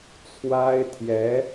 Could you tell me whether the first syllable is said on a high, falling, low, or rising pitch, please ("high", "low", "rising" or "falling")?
high